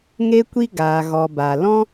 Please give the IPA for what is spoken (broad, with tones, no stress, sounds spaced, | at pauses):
ŋ e˧ kʷ i˧ ɡ aː˨ ɣ ɔ˨ b a˨ l ɔ̃˦